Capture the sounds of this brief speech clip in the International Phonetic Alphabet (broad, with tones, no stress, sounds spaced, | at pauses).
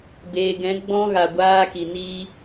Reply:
b eː˨ ɡ ɛ̃˨˦ ɡ͡b ɔ̃˧ ɣ a˨ ɡʷ aː˧ k i˨ n iː˧